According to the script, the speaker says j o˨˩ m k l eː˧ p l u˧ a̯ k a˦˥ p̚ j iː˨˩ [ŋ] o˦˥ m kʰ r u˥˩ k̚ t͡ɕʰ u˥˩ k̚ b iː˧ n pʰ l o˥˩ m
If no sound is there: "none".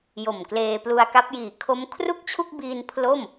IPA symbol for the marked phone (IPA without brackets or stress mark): kʰ